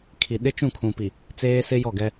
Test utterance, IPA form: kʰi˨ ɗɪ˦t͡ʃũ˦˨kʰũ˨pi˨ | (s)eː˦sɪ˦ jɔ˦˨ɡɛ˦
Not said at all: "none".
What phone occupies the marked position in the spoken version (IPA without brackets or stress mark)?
t͡s